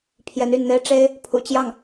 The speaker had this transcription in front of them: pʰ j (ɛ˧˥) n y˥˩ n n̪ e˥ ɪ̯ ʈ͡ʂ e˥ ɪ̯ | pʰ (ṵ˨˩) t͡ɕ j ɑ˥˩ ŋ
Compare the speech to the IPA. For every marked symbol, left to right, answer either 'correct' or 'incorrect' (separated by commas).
correct, correct